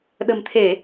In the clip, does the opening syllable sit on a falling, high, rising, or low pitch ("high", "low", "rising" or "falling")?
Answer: low